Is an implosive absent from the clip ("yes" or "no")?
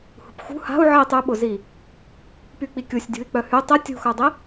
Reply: no